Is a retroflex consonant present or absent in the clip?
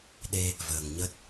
absent